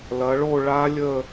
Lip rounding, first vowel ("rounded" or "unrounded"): unrounded